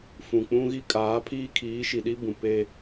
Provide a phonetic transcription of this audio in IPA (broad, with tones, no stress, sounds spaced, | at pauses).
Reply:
f ũ˨ k͡p ũ˦ ɣ i˦ kʼ aː˨˦ pʰ iː˦ kʰ iː˨˦ ʃ i˨ ɗ i˦ b ũ˨ p e˦